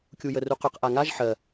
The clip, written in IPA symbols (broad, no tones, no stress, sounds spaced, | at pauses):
kʲ u j ə r u q ʏ q ʔ a ŋ a ʒ ħ ɜ